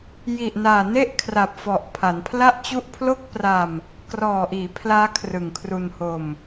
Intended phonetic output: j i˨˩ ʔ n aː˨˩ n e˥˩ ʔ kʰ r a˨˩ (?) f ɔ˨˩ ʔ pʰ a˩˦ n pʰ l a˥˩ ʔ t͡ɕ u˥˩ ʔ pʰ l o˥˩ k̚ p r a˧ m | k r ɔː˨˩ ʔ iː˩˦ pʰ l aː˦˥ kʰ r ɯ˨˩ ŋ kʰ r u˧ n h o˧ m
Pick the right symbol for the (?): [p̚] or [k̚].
p̚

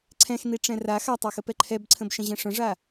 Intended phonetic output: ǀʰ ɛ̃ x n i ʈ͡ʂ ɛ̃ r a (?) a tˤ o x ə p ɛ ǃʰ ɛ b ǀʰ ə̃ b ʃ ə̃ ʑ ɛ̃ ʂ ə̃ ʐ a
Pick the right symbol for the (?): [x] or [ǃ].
x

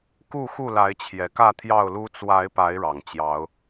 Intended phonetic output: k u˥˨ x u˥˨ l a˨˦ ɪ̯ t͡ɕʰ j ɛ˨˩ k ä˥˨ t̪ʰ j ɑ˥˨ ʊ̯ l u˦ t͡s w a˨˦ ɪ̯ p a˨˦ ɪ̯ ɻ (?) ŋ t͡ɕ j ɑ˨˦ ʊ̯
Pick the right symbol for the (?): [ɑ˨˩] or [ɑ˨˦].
ɑ˨˩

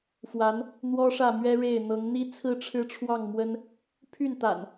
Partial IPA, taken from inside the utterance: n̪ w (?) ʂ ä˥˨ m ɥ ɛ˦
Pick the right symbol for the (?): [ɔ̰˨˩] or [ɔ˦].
ɔ˦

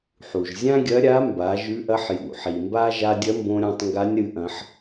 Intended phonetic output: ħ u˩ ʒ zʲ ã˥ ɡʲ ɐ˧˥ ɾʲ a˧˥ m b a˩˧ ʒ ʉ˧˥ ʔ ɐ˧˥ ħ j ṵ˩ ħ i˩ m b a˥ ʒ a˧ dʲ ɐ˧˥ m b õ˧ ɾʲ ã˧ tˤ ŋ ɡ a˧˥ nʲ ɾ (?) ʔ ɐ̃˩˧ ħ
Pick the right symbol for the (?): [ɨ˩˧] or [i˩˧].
ɨ˩˧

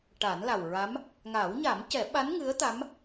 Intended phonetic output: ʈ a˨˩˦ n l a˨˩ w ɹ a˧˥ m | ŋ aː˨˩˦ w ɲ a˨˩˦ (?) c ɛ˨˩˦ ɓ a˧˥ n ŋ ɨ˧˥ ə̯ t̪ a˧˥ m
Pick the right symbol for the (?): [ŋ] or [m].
m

